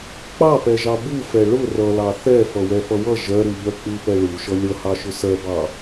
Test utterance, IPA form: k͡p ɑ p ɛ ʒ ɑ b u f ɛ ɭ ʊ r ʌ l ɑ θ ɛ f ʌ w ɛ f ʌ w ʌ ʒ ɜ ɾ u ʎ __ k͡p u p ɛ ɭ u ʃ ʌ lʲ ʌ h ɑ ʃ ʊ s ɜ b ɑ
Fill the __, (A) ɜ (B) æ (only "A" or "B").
A